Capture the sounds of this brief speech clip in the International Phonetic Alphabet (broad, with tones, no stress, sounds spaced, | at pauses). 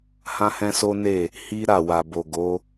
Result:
h ã˦ h ɛ̃˦ s o˦ n e˦˨ | h i˦ ɾ a˦˨ w a˨ b o˨ ɡ o˨˦